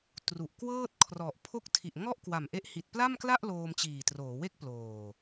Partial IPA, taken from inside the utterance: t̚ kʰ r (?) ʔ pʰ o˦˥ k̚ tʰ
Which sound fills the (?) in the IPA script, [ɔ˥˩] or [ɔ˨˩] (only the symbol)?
ɔ˨˩